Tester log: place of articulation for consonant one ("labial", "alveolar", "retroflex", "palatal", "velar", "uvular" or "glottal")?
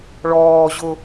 retroflex